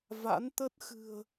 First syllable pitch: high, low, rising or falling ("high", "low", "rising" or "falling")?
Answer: rising